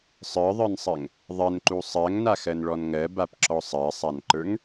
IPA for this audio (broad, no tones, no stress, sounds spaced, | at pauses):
sˤ ə˞ ðˤ ə˞ n sˤ ɜ ŋ | ðˤ ɜ n ǃ u sˤ ɜ ŋ n a x ɜ n ɭ ɔ n ŋ ɜ b a p ǁ ɔ sˤ ɜ sˤ a n ǃ ə˞ ŋ